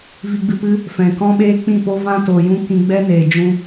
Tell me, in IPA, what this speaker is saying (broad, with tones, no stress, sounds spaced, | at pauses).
v i˧ ɡ͡b ɨ˧ p ɨ˦ | f ɛ̃˨ k ɔ̃˦ ɓ eː˦ k͡p ĩ˦˨ p o˦ v ã˦ t o˨ j ũ˦ k ĩ˧ ɡ͡b ɛ˦ n eː˨ d͡ʒ ũ˧